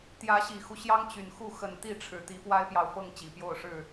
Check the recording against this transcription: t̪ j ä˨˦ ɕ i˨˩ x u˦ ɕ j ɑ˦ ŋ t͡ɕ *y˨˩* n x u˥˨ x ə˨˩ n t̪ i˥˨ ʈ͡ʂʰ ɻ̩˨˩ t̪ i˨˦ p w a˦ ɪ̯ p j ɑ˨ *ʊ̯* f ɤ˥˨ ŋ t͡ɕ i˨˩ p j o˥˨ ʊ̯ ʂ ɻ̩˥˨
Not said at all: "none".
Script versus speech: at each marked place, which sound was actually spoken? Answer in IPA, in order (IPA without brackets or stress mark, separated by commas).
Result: y˨˩, ʊ̯